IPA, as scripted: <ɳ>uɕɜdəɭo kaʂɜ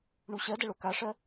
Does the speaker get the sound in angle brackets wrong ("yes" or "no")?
no